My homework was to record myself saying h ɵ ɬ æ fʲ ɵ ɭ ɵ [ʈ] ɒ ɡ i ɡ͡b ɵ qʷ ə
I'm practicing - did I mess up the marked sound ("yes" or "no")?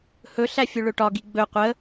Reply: no